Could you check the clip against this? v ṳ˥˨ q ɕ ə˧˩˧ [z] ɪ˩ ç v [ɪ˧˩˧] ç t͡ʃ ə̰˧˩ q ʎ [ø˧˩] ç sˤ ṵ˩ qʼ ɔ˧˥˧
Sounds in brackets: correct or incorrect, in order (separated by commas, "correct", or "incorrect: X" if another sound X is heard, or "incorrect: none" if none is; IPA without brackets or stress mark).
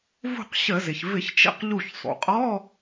correct, correct, incorrect: u˧˩